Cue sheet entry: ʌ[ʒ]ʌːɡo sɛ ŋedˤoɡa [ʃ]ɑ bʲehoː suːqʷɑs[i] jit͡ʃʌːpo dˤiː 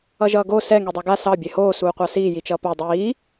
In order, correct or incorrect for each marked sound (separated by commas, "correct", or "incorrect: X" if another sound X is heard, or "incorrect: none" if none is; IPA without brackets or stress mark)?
correct, incorrect: s, incorrect: iː